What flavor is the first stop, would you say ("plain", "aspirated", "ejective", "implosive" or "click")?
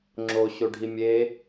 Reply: click